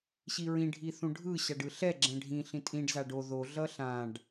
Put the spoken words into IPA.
ɕiɹĩ ɖʱiθũɖʱɯ ɕaɖɯɬɛ ɡ͡ǁɛ̃ɖʱĩ ɬĩtʼĩɖ zaɖo ðo ɮʌɬãɖ

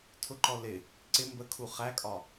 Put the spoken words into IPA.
tʰʊǃɔ lɪ | ǀɪ mbə kʰuχækʼɒ

